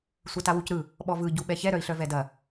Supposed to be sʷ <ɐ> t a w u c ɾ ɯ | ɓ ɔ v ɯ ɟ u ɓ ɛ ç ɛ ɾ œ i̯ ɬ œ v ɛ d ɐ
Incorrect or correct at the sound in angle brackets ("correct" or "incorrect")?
correct